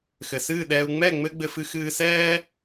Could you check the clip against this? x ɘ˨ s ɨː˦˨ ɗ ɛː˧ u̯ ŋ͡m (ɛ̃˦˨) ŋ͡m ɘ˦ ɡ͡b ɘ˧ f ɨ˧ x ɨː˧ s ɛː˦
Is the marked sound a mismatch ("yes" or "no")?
yes